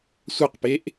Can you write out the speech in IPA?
sʷ a q p e ʔ

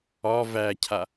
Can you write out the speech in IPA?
ɒ v æ cʰ a

